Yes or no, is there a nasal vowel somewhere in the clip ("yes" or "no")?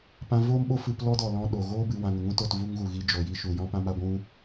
yes